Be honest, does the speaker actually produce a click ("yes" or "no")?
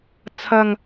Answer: no